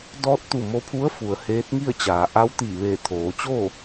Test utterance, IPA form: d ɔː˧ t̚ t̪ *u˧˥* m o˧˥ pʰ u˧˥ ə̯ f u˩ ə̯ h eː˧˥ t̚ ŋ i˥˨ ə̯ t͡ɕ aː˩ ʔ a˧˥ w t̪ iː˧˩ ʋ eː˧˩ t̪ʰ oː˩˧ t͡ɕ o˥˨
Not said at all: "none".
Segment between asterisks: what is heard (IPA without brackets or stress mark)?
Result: u˧˩